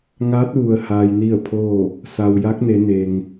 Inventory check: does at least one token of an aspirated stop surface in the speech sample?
yes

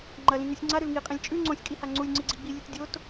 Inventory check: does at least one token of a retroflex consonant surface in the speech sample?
no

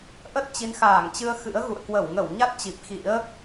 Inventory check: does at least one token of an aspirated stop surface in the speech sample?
no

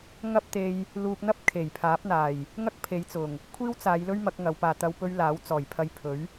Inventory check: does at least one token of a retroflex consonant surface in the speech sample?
no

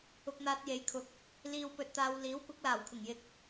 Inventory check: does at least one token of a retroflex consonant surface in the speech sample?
no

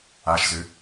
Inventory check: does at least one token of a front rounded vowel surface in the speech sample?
yes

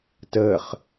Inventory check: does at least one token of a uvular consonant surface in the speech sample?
yes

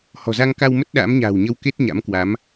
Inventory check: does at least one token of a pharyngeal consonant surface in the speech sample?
no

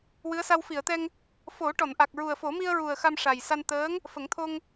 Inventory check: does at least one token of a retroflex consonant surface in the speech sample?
yes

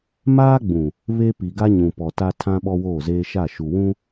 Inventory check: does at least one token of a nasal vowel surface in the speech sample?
yes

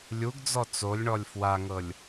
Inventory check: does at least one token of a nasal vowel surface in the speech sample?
no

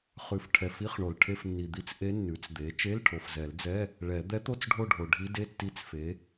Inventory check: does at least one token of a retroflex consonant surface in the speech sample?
yes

